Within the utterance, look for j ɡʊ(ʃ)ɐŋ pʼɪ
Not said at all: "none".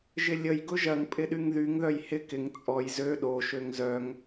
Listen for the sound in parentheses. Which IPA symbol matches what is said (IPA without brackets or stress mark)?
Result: ʒ